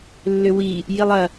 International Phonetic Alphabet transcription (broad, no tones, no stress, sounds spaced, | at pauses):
lː ʏ w i | j i lˠ ɐ